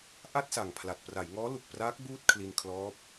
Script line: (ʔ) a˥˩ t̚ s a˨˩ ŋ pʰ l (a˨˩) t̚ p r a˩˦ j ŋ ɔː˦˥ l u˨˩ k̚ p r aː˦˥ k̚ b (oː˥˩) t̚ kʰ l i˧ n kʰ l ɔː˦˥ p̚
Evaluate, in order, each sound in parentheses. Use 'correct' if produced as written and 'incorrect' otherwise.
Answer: correct, correct, incorrect

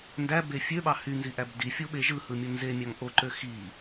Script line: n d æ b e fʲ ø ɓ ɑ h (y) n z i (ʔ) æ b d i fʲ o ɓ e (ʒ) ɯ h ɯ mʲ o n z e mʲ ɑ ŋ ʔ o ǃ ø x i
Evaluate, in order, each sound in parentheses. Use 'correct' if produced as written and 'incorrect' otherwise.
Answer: correct, correct, correct

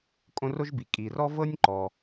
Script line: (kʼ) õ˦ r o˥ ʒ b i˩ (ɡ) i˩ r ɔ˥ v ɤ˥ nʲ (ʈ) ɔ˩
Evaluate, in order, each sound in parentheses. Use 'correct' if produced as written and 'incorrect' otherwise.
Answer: correct, incorrect, incorrect

